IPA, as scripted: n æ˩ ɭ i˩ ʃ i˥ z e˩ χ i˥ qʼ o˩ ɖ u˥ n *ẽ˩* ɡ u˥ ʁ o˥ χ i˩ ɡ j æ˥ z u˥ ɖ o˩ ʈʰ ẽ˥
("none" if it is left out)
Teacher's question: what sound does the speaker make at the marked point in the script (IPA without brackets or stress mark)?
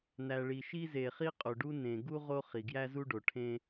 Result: ẽ˩